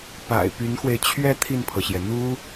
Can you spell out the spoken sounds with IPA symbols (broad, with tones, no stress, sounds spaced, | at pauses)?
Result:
p a̰˨˩ ɪ̯ p y˧˥ n x w e˧ ɪ̯ t͡ɕʰ ɥ ɛ˥˧ t̪ʰ i˥˩ n pʰ ɤ˩ ɕ j ɛ˩ n̪ u˥